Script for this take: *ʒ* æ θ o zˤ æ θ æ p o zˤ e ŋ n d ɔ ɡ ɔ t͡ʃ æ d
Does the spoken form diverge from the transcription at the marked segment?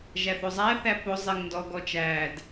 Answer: no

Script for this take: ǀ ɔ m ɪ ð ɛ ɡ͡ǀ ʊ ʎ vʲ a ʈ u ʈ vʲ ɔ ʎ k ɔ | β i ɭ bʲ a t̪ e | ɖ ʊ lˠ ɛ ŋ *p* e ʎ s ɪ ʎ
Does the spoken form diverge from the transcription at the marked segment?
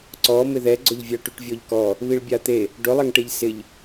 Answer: yes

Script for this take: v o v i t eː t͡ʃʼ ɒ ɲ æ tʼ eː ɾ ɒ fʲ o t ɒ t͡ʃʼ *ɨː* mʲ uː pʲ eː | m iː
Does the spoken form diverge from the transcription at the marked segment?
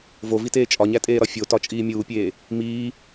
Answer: yes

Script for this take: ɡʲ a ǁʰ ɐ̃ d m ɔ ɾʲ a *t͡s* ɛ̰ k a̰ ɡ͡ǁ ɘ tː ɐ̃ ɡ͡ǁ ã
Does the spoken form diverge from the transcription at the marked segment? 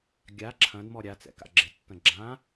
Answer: no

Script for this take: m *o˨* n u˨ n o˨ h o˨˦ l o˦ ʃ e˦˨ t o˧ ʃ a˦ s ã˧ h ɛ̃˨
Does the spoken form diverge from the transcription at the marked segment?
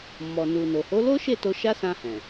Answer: yes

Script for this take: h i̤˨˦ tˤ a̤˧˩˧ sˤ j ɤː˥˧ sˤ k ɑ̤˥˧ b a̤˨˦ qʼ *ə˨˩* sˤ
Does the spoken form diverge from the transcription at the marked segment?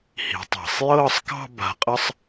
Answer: yes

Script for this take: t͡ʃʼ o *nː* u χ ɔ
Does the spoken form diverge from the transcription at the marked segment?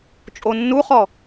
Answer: no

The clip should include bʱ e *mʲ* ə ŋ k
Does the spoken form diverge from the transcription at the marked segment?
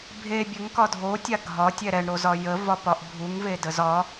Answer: yes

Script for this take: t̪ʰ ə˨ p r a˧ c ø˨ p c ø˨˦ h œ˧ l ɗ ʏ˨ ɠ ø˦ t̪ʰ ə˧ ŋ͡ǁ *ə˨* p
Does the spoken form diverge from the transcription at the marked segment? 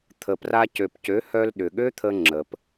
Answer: no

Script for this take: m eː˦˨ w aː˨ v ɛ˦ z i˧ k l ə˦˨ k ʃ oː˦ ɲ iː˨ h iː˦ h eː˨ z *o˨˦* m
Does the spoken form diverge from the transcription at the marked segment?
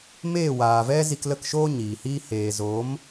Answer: no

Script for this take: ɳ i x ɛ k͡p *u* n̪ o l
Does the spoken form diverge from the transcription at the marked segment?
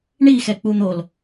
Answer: no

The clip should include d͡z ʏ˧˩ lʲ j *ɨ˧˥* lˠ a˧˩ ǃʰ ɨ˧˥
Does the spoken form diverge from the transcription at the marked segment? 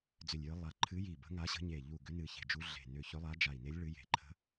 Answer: no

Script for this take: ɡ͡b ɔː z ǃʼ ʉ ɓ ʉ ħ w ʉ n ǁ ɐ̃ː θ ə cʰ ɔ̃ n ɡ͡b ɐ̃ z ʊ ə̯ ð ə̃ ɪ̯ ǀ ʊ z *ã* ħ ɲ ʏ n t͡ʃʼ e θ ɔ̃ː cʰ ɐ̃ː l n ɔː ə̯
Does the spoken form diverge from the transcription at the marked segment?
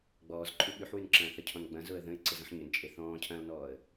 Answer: yes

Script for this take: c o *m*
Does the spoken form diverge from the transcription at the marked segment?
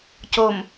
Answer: no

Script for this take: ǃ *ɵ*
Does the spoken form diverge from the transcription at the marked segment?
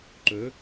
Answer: no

